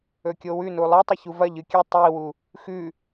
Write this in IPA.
ɵ kʲ o w ʉ n u lˠ e tˤ ɐ ç u v ɐ ʎ ɨ kʲ ɨ tˤ i w u | x ʉ

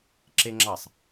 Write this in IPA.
ǁ e ŋ͡ǁ ɑ sˤ

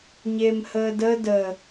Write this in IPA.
ɲ e m h əː d ə d ə

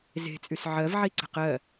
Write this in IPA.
z e̤ t͡sʼ y s ʕ ɜ v ʕ i ǀ ə̤ q ɜ

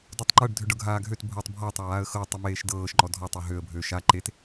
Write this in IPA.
d o tˤ ŋ͡ǃ ɤ ɖ dʱ ø ɖ ɤ ɡʱ aː ɡʱ ø t bʱ ɤ tˤ bʱ ɔ tˤ a w aː ə̯ x ɤ tˤ ø m eː ʃ d ɤː ʃ ŋ͡ǃ ɔ dʱ ɔ tˤ o ɦ ø ə̯ bʱ ø ʃ a ǃ e t

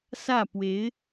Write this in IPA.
s ä˥˩ p w e˧˥ ɪ̯

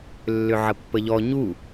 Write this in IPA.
lː ʏ ʕ ə pː ə ʎ ɔ ɲ u

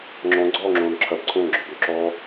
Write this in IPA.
ŋ͡ǁ ɔ̃ ɡ͡ǀ ɔː ŋ͡ǁ õː n ǁʰ ɐ b ǀʰ õː ɡ͡ǁ ɔ b ø ǁ ɔː

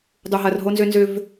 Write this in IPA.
dˤ u˨ ɦ ɐ˨ r ɦ o˦ n z ʏ˦ n z ʏ˦ v

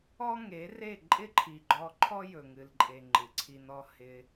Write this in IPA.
ɔ˦ ŋ e˨˦ r e˦˨ ǃʼ ɪ˦ ǃʰ i˨ ɡ͡ǃ ɔ˧ ǃʰ ɔ˦ j ɵ˨ ŋ ɨ˨ l ǃʼ e˨ ŋ͡ǃ ɨ˨ ǀʰ i˧ n ɔ˦ h ɪ˧

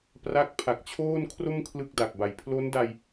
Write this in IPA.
p r a˦˥ k̚ pʰ a˨˩ k̚ t͡ɕʰ oː˥˩ n kʰ r o˥˩ m kʰ l ɯ˥˩ k̚ d a˨˩ k̚ b a˨˩ j pʰ l o˦˥ n d a˧ j

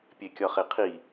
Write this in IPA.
pʲ e kʲ ɒ χ e qʰ i

